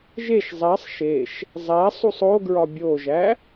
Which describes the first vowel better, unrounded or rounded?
unrounded